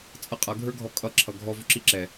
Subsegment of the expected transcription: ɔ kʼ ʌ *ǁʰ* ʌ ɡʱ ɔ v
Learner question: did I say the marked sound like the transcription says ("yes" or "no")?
yes